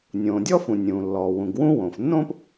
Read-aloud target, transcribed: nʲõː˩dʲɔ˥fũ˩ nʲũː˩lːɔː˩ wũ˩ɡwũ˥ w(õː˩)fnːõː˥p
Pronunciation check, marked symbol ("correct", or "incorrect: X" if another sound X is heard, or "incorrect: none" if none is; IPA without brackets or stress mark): correct